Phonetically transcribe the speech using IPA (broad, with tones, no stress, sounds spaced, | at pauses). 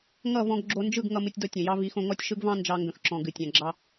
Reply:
ŋ ʌ˦˨ v ɔ̃˧ ɡ ɡ͡ǁ o˧ n d͡ʒ ɯ˦˨ ɡ ŋ ʌ˧ m ɨ˧ tʲ d ɔ˧ tʲ ə̃˨ j ɑ˦ v i˨˦ x õ˧ ŋ ɔ˦ tʲ ʃ ɯ˦ ɡ v ɑ̃˦ n d͡ʒ ɑ˧ ŋ ɡ ə̃˨ x ǁ ɔ̃˨ ɡ ɨ˨ tʲ ã˨ ɡ͡ǁ ɑ˧